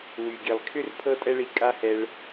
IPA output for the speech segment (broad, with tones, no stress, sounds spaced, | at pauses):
w y˩ ɡ i˩ lˠ kʰ ʏ˥ r pʰ ɤ˥ tʼ ɛ˥ ɭ i˧ kʼ a˥ h ɛ˧ ɭ